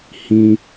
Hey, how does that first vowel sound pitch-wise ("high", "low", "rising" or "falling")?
high